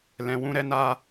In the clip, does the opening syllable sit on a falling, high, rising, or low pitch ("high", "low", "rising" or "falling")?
low